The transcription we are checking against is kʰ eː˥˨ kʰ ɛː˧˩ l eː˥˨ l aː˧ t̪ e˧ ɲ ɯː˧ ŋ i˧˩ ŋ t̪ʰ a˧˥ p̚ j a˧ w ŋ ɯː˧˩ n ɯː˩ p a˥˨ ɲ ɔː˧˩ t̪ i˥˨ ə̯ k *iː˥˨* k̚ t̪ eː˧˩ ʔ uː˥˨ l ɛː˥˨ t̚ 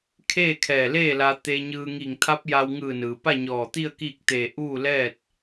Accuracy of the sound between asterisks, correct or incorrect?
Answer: correct